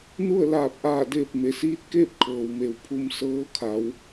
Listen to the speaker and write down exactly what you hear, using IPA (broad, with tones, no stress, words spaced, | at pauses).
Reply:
nu˥˨ə̯laː˧˩p̚ʔaː˧˩deː˧˩p̚ me˩siː˧˥t̚keː˥˨p̚ kʰɤː˩wme˩w pʰu˧m sɤː˧˥kʰa˩˧w